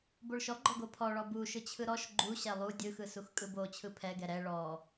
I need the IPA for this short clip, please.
b o ɭ ʃ ɔ ɡ͡ǃ ɔ ɡ o pʰ ɔ ɭ ɔ b u ʃ ɯ t͡ɕʰ ɯ ɾ ɔ ʃ ɡ͡ǃ u ɕ ɛ lˠ u dʲ ɯ x ɯ s u x kʼ ɯ b o t͡ɕʰ ɯ pʰ ɛ ɡ ɛ ɾ ɛ ɭ ɔ

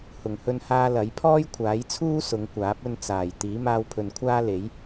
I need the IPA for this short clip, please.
h ʊ˨˩ ŋ h ɵ˧ n h aː˧ l ɐ˨˥ j pʰ ɔː˥ j kʷʰ aː˨˥ j t͡sʰ uː˥ s ʊ˨˧ ŋ kʷ aː˨˥ p̚ ɵ˧ n t͡s aː˨˩ j t̪ iː˨˥ m aː˧ w pʰ ɵ˨ n kʷʰ aː˥ l e˨˥ j

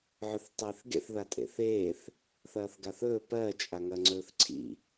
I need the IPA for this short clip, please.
ʕ ɵ θ tˤ eː θ ɡ ḛ θ ð a tʼ ḛ θ eː θ | θ ɐː θ ɡ a θ ɵː p ɜ t͡ʃʼ a ŋ ɐ ŋ͡ǀ ɵː θ ǀʰ ḭ

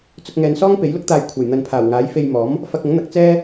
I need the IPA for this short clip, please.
t͡s ʊ˧ k̚ ŋ ɛː˨ n s ɔː˥ ŋ p e˨˥ j l ʊ˥ k̚ t̪ aː˧ j kʷʰ ɐ˨˩ j n̪ ɐ˨ n pʰ aː˨˩ w ŋ aː˨˥ j f e˧ j m ɔː˨˥ m | f ɐ˧ k̚ ʊ˨˥ ŋ n̪ ɐ˨˥ k̚ t͡s ɛː˥

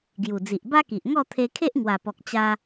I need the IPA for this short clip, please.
ɡ j u˨˩ d͡z i˨ ʔ b a˦ k i˨ ʔ ŋ ɔ˥˧ t̪ʰ e˧ kʰ e˦ ʔ ŋ w a˨˩ p ɔ˨ k̚ t͡ɕ a˧

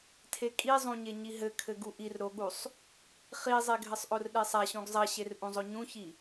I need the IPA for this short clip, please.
tʰ e kʼ i zˤ ũ ɲ e ɲ i ɦ ɘ kʰ ɘ ɡ u ʔ i r ɾ o ɠ u sˤ | χ i zˤ e ɡʱ ɘ sˤ ʔ o r ɗ e sˤ a ɕ ũ ɡ zˤ ɐ ɕ e r ʔ ũ zˤ o ɲ ũ ç i

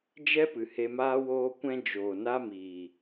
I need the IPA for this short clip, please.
d͡ʒ ɛ˦ p ɨ˨ h e˧ m aː˦ w oː˦ kʷ ɛ̃˧ d͡ʒ oː˨ n a˦ m iː˨

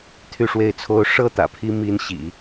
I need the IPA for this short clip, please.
t̪ʰ y˥˧ ʂ w e˥˩ ɪ̯ t͡sʰ o˥ ʊ̯ ʂ ɤ˥˩ t̪ ä̰˨˩ pʰ i˥ m i˥ n ɕ ḭ˨˩˦

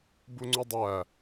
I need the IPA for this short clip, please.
b u ŋ͡ǀ u dˤ æ

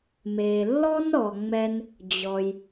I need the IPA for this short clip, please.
m e˩ lː ɔ˥ n ɾ ɔ˩ ŋ͡m ɛ˧ n | d͡ʑ ɔ˩ j

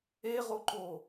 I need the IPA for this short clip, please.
e ʁ o ǃ o

